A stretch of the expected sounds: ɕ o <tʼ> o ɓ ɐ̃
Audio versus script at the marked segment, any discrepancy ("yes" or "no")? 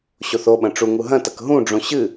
yes